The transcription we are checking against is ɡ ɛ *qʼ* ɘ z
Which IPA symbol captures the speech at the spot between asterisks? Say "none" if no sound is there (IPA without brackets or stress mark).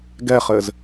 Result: χ